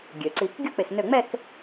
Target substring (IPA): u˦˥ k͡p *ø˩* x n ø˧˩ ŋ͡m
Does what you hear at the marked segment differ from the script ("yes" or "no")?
yes